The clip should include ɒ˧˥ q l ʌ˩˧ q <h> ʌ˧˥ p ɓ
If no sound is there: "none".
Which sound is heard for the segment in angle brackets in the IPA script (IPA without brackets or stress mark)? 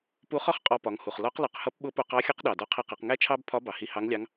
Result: h